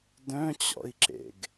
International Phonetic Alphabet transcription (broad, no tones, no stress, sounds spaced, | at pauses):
d œ̃ t͡ɕ ɔ̰ i̯ ǁ ḛ ɡ